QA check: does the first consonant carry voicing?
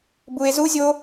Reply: yes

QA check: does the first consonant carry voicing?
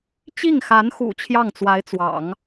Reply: no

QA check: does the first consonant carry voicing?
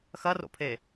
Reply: no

